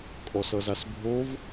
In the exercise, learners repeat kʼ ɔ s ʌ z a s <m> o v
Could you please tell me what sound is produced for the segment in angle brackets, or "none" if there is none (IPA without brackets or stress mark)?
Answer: bʱ